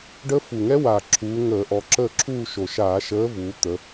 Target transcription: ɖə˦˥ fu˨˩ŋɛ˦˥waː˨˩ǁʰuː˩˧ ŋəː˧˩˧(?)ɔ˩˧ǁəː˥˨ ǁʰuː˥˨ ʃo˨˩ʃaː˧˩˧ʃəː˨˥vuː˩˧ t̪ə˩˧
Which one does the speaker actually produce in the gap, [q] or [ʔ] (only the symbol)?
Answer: ʔ